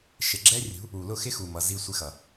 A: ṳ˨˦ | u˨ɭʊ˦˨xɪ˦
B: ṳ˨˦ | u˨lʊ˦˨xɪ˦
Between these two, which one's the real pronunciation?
B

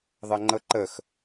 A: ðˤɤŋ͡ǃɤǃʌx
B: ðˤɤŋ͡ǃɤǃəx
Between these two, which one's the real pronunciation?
B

